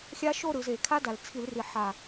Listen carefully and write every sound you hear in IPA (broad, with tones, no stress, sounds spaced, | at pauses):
xʲ a˦˥ ʃ o˥˧ ɾ ɯ˩˧ z eː˧˩˧ kʰ a˦˥ d a˨˩ l t͡sʰ i˧˩˧ l r i˨˩ ħ a˨˩